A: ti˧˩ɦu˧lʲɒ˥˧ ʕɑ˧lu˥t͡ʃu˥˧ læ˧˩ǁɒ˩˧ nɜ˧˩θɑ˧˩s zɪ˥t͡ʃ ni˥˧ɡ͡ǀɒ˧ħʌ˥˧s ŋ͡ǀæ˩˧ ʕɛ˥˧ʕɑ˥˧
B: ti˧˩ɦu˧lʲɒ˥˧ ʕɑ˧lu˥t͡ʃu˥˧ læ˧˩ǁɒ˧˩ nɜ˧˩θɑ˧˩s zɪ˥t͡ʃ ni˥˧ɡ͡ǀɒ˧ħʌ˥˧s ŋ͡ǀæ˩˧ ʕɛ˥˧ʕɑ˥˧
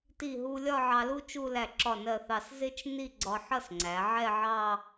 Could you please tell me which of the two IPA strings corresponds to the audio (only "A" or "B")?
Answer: B